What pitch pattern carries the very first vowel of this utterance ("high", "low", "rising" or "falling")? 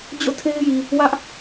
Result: falling